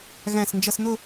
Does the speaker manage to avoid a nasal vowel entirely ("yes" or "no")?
no